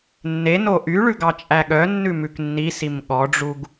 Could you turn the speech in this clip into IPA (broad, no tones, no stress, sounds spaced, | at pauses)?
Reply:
nː e n o ʔ y ɭ ʉ ɡ ɑ t͡ʃʼ æ ɠ œ nː ʉ m ʉ k nː i s i m ɠ ɔ ɖ͡ʐ u ɡ